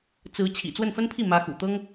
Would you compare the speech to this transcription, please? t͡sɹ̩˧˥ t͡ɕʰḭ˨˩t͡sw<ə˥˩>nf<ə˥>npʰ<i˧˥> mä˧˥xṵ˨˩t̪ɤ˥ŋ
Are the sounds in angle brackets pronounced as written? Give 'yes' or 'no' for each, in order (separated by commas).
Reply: yes, yes, no